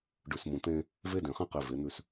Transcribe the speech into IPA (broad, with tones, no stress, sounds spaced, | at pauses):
ɖ ʉ˨ s m ũ˨ t̪ ẽ˦ | v e˦ d ẽ˨ χ ĩ˦ q i˨ v e˨˦ n̪ ʉ˦ s